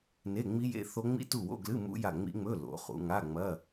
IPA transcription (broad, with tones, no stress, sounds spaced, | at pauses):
n e˧˥˧ ŋ͡m i˦˥ j ḛ˧˥˧ θ o˦˥ ŋ͡m ḭ˦˥ t u˦˨ w o̰˧˥˧ ɡ l ɨ˧˥˧ m ṵ˦˥ j a˦˨ ŋ͡m ḭ˦˥ ŋ͡m ɵ˧˥˧ l o̰˩˧ χ ṵ˩˧ ŋ a˧˥˧ ŋ͡m ɐ˧˥˧